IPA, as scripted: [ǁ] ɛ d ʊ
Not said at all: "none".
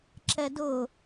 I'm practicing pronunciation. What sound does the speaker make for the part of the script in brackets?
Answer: ǁ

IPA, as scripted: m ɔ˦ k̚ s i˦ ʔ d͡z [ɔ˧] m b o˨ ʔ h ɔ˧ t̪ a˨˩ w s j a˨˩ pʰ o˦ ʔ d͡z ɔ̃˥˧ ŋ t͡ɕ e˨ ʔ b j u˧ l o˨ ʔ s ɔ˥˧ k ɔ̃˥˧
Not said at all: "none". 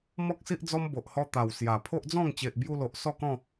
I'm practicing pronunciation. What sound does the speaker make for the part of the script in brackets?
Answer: ɔ˦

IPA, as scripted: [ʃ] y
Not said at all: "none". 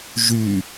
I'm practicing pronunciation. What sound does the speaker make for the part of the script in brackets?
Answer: ʒ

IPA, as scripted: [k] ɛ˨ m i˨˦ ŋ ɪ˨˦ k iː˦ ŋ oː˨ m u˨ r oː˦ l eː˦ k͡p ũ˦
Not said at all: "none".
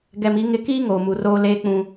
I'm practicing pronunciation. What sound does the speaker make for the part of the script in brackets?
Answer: ɡ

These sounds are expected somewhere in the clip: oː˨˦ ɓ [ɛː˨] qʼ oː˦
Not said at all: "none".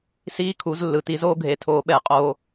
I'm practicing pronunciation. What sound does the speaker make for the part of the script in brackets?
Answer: ɛː˨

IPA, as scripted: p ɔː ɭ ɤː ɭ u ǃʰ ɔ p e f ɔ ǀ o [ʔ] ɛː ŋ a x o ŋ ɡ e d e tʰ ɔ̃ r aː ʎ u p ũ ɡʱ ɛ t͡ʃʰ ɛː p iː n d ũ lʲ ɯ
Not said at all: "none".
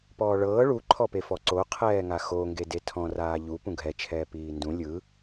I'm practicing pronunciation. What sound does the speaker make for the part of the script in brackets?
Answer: qʰ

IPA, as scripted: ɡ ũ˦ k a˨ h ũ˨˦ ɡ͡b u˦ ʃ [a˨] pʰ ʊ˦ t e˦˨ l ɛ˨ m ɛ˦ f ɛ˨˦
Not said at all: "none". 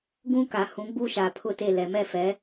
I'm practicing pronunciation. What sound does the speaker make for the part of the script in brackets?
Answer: a˨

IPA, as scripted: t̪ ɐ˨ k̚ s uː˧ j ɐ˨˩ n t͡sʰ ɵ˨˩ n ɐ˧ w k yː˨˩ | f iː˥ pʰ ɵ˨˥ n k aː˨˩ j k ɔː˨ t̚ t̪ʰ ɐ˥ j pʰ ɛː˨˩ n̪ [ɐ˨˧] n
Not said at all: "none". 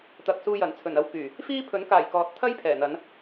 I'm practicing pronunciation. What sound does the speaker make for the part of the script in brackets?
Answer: ɐ˨˧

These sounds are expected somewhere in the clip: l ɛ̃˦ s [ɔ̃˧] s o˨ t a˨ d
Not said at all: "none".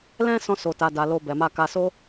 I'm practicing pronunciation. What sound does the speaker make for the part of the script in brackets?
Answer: ɔ̃˧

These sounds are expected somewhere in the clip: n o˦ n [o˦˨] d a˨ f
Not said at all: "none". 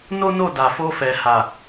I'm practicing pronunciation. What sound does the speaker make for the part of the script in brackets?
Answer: o˦˨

